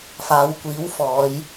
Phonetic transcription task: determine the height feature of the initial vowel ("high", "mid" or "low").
low